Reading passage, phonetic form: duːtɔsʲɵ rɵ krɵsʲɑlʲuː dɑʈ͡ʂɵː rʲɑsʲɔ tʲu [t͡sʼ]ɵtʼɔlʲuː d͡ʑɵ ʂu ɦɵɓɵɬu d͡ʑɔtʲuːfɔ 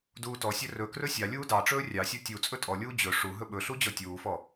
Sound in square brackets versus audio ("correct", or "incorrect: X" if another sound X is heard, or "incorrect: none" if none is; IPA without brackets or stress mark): correct